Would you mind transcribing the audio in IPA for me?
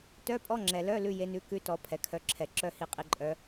t œ˧˥˧ pʼ ɔ˧˥˧ ŋ͡ǁ ɛ˩ l œ˧˥˧ l ʉ˧˥˧ j e˨˦ n ʉ˨˦ k ʉ˧˥˧ t ɔ˨˦ pʰ ɛ˩ kʰ œ˨˦ ǁʰ ɛ˩ ǁ œ˧˥˧ h i˨˦ qʼ i˨˦ ǃʼ œ˨˦

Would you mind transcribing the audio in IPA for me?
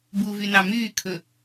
b u v y n ɑ m yː kʰ ɵ

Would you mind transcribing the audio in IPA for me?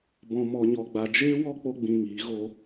b ɔ̃˧ m ɔ˧ ɲ ɔ˧ ɡ͡b a˧ d͡ʒ eː˦ w ɔ˦ k͡p o˦ ɡ͡b ĩ˧ ŋ iː˨˦ ɣ o˧

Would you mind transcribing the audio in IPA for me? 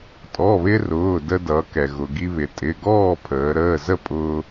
tʼ ɔ˩˧˩ β ɪ˧ r ʊː˩˧˩ d ə˧ d ʌ˩˧ k ɛ˩ ɣ ʊ˩ ɡ i˧ β ɪ˩˧ tʼ ɪ˩˧˩ ɡ ɔː˥˨ pʰ əː˩˧ ɾ əː˩˧˩ z ə˥˨ pʼ ʊː˧

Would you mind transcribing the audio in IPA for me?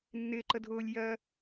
nː ɪː ǃ ə dʱ ʊː lʲ j ɜ

